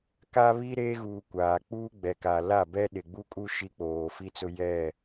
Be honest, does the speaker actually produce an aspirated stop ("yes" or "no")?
no